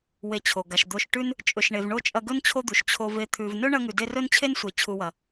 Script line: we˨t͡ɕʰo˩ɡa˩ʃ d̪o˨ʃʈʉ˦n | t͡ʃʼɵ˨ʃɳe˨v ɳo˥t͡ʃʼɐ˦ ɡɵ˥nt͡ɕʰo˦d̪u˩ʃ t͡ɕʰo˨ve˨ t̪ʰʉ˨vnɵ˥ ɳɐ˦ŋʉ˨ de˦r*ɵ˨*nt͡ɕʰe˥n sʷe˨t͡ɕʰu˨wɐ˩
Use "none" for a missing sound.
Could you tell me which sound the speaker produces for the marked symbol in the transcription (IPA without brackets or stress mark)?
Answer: ɵ˥